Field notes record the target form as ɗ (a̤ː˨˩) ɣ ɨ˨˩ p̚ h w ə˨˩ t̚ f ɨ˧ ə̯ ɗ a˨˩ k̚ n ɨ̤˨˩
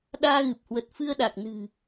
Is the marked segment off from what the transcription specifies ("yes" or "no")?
yes